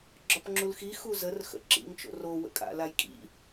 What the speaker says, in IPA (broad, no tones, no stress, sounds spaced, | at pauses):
ɡ͡ǁ ɒ p ŋ͡ǁ u l x i x u z ə r x ə̰ ǁ ḭ ŋ t͡ʃ o̰ r o w ə̰ kʼ a̰ l a j kʼ ḭ